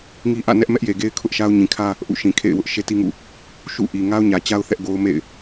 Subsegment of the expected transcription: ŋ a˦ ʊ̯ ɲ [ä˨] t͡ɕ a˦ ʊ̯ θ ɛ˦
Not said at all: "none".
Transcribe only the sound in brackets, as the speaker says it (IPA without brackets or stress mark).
ä˨